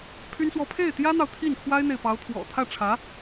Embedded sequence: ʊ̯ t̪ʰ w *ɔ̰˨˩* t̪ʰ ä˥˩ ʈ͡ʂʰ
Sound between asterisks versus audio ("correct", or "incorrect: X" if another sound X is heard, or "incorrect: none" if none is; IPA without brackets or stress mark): correct